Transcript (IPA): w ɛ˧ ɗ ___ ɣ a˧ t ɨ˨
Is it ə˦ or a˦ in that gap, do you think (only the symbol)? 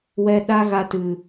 a˦